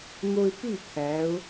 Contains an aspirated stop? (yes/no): yes